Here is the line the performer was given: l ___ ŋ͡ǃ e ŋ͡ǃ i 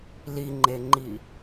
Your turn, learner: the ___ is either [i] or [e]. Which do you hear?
i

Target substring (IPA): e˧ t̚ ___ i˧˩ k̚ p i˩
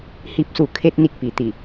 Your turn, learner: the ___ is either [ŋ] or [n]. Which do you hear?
n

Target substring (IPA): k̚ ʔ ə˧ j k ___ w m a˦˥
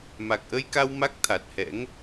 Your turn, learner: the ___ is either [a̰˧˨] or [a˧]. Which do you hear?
a˧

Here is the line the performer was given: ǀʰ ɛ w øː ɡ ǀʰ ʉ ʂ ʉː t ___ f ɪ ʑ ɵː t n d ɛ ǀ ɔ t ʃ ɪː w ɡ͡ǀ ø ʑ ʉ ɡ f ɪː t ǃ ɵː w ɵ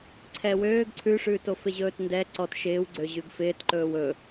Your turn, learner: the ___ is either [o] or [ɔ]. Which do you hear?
o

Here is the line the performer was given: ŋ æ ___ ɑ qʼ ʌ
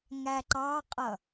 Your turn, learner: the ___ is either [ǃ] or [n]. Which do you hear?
ǃ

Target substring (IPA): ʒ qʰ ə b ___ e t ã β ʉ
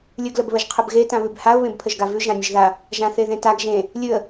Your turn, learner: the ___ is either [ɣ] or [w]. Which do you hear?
ɣ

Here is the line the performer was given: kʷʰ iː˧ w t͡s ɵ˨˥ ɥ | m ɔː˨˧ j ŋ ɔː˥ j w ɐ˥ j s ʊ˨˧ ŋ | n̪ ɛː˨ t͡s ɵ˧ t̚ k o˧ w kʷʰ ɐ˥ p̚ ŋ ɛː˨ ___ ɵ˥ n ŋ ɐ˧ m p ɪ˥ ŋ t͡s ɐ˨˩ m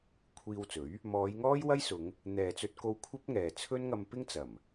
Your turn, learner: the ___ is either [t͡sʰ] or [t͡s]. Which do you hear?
t͡sʰ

